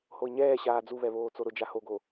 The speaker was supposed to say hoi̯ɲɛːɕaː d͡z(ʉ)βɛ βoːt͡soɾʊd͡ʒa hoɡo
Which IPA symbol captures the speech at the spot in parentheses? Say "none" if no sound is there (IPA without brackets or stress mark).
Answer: u